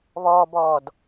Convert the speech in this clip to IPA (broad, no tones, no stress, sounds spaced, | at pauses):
β ɔː b ɔː d